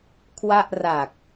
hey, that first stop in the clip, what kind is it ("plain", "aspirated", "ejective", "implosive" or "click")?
aspirated